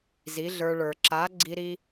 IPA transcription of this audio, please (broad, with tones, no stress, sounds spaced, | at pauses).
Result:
z i˨˦ ɮ ə˞˧ ɭ ə˞˨ ǁ a˨˦ ɡ͡ǀ i˧ ɾ i˧